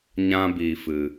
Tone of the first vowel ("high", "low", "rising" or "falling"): high